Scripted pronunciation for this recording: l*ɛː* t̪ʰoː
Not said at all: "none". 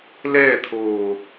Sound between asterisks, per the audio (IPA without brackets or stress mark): ɛː